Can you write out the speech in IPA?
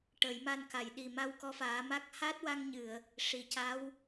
ʈ ə˨˩˦ j m a˧ n k a˨˩˨ j ɗ i˨˩ m a˧ w k ɔ˧˥ f aː˨˩˦ m a˦˥ k̚ h a˦˥ t̚ w a˧ ŋ ɲ ɨ˨˩˨ ə̯ | ʂ i˨˩˨ c a˧˥ w

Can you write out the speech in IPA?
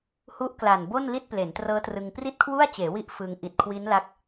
h u˦˥ ʔ k l a˨˩ n b o˥˩ n l i˥˩ t̚ p l e˩˦ n t r ɤː˦˥ t r ɯ˧ ŋ p r i˥˩ t̚ kʰ w u˥˩ a̯ t͡ɕ eː˩˦ w i˦˥ ʔ f ɯ˧ ŋ ʔ i˨˩ t̚ kʰ w i˦˥ n l a˦˥ k̚

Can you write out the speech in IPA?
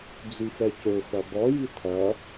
d͡z y f ɛ c ø f ɐ b ɔ j i tʰ ɐ

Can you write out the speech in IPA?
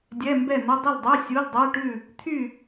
dʲ ɛ˧˥˧ m b ɛ˥˨ n ə˧˥˧ dˤ ə˥˨ l dˤ ɛ˧˥˧ sʲ u˧˥˧ l dˤ ɛ˧˥˧ ʈ ʉ˥˨ | t̪ʰ y˥˨

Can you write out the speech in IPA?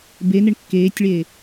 b e n ɪ ɳ kː eː tʲ ɭ eː

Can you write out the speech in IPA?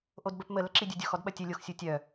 ʔ o d b ə p m ə l ə ǁ i dʲ u dʲ o x ɔ d ɓ ɐ tʲ ɘ lʲ o x sʲ u tʲ œ

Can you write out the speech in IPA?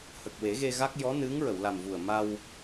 h ə˨˩ k̚ w e˨˩˦ ɣ e˧ ɣ a˦˥ k̚ j ɔ˧˥ n ɨ˧˥ ŋ ɹ ə˨˩˨ w l a˨˩ m v u˨˩ ə̯ m a˧ w

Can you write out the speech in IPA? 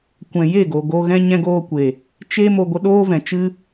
kʷ ɛ̃˨ j e˦˨ ɡ o˨ ɡ o˧ ɣ ɛ̃˧ ɲ ɛ̃˧ ɡ oː˧ kʷ e˨ | t͡ʃ e˦ m o˧ ɡʷ ə˧ ɗ oː˦ v ɛ̃˨ t͡ʃ ɨ˦

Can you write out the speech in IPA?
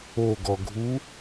o ɡ ɔ ɡʱ u

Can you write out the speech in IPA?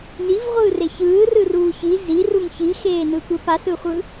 n i v ʁʷ ɯː r e ç ɯː r ɯ r uː ç i z i r u ŋ ç i x eː n ɯ tʷ e p a s ɯ χʷ ɯ

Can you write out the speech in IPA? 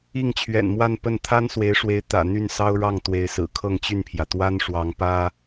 i˥˩ ŋ t͡ɕʰ ɥ ɛ̰˨˩ n m w a˥˧ n p ə˥˩ n t̪ʰ a˥ n s w e˧˥ ɪ̯ ʂ w e˧˥ ɪ̯ t̪ ä̰˨˩ n̪ y˥˩ n s ɑ˥ ʊ̯ ɻ ɑ˥˩ ŋ t̪ w e˧˥ ɪ̯ s ɹ̩˨˩ kʰ ɤ˥˧ ŋ t͡ɕ y˥˩ n pʰ j ä˩ t̪ w a˥ n ʂ w ɑ˧˥ ŋ p ä˥

